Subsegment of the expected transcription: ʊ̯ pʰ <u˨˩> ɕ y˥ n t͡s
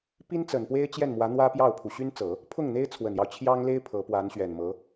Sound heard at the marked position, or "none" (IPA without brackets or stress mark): u˨˩